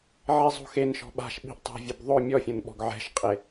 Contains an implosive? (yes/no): yes